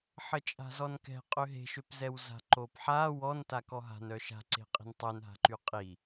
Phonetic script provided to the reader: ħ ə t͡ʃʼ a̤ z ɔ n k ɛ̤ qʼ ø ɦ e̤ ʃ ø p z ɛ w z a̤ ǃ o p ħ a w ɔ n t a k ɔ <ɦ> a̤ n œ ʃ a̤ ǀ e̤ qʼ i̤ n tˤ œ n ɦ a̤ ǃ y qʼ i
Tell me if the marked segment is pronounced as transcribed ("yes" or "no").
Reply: yes